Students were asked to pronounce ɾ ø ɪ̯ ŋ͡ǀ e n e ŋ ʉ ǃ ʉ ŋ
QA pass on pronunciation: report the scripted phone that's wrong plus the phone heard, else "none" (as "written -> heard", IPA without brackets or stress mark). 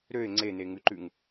none